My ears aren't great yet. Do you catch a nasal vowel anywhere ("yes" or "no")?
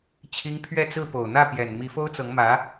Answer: no